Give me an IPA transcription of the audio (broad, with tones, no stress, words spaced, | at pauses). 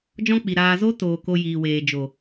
d͡ʒɔ̃˦k͡pi˨ ɾaː˧zo˦ toː˨ ko˧jiː˨weː˨ d͡ʒo˨